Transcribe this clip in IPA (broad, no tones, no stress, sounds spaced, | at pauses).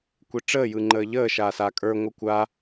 kʷ e ʈ͡ʂ əː j ɯ ŋ͡ǃ əː ʎ əː ʃ aː s a kʼ ə˞ ŋʷ ə kʷ a